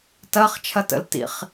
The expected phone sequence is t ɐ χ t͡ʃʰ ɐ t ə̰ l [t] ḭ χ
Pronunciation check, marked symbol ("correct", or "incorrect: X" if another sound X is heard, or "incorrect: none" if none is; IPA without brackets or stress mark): correct